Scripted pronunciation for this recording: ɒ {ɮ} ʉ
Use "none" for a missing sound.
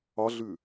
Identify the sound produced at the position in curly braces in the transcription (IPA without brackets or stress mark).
ɮ